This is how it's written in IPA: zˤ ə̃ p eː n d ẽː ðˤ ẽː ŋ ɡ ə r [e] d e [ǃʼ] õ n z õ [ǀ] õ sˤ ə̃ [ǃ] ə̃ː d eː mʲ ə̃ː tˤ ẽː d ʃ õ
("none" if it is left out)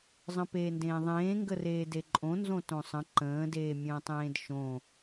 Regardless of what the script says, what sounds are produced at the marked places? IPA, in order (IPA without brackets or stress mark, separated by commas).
eː, ǃʼ, t, ǃ